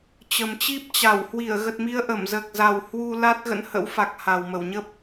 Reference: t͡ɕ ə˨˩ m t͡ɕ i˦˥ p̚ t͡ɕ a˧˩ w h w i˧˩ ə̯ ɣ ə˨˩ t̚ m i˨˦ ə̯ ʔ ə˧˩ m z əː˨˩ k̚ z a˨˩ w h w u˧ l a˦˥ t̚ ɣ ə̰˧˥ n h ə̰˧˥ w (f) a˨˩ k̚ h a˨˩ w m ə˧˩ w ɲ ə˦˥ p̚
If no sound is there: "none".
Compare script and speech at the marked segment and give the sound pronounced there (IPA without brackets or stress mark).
f